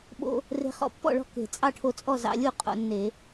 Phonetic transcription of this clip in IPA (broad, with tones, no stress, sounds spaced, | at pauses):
ɓ o̰˧ | r e̤˧ χ ɔ̰˧ pː ɔ̰˥˨ ɭ ɔ̤˥˨ k e̤˧˩˧ t͡sʼ ɑ˥˨ ʈʰ o˧ t͡sʼ ɔ˥˨ z ɑ̰˧ lʲ u˥˨ qʼ o̰˧ nː e˧˩˧